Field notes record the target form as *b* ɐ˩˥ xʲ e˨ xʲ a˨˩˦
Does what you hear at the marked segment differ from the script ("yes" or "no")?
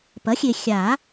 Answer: yes